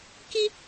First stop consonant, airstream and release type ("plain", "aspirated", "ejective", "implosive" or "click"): plain